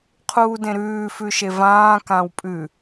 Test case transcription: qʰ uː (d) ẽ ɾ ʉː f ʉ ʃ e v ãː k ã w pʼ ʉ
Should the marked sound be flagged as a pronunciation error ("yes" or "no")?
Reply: no